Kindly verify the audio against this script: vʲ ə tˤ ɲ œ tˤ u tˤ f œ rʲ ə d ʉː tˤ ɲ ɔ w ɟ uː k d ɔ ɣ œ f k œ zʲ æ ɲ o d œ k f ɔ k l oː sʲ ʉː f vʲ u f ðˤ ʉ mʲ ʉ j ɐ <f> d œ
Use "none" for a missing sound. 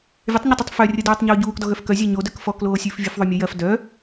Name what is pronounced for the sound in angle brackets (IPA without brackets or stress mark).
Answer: f